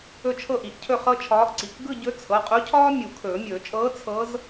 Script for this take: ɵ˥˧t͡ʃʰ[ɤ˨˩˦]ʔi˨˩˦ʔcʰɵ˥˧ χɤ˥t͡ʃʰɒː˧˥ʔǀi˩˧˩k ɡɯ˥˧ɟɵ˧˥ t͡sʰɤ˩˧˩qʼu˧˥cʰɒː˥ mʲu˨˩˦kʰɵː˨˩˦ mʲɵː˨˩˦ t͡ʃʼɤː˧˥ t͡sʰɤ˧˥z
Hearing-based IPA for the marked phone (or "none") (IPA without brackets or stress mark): ɤ˥˧